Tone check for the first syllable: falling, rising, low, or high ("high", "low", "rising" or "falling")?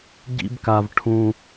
high